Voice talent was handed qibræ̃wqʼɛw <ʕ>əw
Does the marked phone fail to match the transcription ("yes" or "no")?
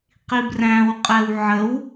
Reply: no